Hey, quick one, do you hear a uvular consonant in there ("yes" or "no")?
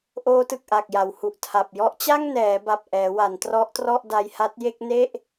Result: no